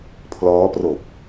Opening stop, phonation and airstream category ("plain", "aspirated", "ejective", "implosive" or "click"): aspirated